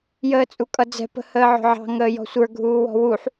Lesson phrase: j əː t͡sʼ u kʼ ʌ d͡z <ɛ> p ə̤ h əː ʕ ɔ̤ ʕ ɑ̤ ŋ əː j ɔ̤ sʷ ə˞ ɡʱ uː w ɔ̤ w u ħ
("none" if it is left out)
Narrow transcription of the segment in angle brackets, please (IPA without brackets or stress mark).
ɛ̤